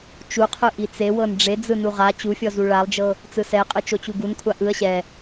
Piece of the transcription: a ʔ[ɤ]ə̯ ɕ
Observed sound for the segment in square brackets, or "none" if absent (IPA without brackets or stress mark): ɯ